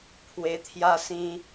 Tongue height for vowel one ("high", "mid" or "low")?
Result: mid